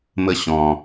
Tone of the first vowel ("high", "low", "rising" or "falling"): high